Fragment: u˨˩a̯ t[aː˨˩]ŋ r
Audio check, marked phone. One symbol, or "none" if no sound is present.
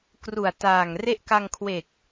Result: aː˨˩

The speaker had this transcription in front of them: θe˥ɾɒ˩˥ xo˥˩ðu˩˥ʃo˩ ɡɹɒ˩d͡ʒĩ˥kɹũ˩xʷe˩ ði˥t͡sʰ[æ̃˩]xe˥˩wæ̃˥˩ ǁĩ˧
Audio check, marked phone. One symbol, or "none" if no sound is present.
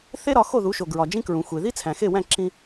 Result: æ̃˩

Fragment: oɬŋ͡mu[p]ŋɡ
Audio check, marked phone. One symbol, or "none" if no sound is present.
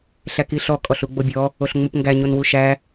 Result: p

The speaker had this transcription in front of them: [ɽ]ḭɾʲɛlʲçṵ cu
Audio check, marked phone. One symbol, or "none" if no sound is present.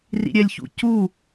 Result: r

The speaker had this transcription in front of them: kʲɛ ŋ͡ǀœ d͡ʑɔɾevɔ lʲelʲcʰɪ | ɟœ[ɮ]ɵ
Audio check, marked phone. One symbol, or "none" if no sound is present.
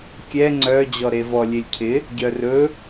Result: r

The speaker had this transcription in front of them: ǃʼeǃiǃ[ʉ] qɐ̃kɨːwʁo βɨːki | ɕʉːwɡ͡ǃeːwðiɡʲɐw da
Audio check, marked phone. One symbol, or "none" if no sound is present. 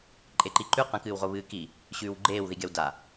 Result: ʉ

